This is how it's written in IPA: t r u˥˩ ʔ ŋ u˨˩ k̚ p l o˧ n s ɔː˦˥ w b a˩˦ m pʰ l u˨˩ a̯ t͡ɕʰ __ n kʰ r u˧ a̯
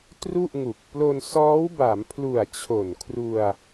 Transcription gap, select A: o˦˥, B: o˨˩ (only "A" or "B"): B